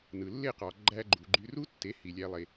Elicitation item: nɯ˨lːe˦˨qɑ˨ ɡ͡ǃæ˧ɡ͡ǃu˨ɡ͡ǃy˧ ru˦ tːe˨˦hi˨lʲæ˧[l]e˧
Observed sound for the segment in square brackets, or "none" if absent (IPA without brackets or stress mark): lˠ